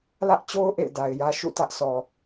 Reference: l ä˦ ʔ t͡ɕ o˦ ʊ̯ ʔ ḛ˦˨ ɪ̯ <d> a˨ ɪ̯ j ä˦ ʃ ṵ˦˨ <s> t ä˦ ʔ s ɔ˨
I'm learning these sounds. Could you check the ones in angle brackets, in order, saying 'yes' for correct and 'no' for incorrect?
yes, no

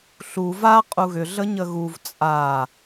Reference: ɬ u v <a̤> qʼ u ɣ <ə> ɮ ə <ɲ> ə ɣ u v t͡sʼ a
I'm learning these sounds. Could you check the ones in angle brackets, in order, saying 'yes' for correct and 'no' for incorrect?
no, no, yes

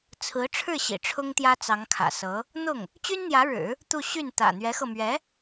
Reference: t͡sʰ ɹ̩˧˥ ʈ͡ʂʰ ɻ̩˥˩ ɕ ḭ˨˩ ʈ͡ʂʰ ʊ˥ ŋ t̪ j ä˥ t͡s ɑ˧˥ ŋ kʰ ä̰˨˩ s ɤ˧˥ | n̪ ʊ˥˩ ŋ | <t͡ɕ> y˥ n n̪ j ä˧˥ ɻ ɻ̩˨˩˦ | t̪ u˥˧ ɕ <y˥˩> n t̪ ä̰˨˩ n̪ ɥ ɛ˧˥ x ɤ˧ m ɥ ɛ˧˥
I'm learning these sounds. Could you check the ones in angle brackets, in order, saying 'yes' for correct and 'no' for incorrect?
yes, yes

